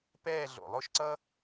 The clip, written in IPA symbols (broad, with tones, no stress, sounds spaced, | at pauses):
p ɛː˥˧ ɮ o̰˧˩ lˠ o˥˧ ʃ ǀ ʌ˥